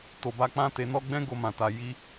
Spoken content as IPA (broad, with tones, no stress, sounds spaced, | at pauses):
t o˨ b a˧ k͡p ã˦ t e˧ n ɔ˦ ɡ͡b ɛ̃˦ ɡ o˧ m ã˨ t a˨ j i˧